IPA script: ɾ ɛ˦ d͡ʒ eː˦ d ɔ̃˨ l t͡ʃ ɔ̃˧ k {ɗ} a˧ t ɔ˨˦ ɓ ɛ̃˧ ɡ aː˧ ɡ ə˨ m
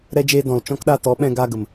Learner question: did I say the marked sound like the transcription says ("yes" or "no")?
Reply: yes